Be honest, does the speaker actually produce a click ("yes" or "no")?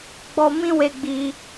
no